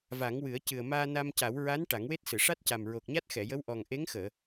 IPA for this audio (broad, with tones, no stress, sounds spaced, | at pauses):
v a˨˩˦ ŋ w ɨ˨˩˦ ə̯ c ɨ˨˩ ə̯ m aː˧ n a˧ m c a˨˩˦ w ɹ a˧˥ n ʈ a˨˩˦ ŋ w e˦˥ t̚ s ɨ˨˩˨ ʂ a˦˥ t̚ c a˨˩ m ɹ o˨˩ k̚ ɲ a˦˥ t̚ x ɛ˨˩˨ j ə˧˥ w ʔ ɔ˨˩ ŋ ʔ e˧˥ ŋ x əː˨˩˨